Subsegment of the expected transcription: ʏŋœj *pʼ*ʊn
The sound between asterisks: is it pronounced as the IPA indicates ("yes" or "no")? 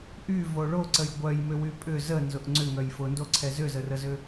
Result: no